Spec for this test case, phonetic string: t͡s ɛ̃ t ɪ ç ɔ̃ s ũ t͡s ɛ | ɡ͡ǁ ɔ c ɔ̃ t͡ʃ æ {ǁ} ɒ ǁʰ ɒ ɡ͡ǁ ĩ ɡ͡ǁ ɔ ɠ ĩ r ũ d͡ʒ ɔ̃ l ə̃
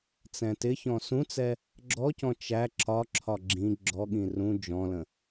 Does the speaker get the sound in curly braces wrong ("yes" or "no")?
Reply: no